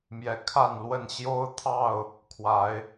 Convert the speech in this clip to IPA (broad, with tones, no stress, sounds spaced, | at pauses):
m j ɛ˨˦ kʰ a˥˨ n l w ə˥˨ n ɕ j o˦ ʊ̯ t̪ʰ ɑ˥˨ ʊ̯ | kʰ w a˨˦ ɪ̯